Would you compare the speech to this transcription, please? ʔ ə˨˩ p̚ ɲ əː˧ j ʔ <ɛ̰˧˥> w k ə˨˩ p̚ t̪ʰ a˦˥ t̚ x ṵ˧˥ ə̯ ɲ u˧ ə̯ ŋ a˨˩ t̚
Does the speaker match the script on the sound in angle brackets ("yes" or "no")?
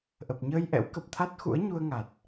yes